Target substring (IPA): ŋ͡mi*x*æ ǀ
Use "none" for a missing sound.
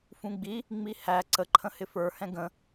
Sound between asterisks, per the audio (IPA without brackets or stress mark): h